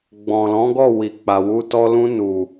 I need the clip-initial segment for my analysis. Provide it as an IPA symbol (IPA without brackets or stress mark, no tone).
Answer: ɡ͡b